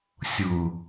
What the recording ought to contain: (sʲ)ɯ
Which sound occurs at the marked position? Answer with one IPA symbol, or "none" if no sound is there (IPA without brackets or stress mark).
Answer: sʲ